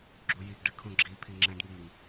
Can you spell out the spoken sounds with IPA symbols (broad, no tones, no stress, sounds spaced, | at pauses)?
ɡ͡ǁ u j i ɡ ɖ ɨ kʰ ũ ɡ͡ǁ i pʰ i ŋ͡ǁ ɛ̃ ɖ ŋ i ŋ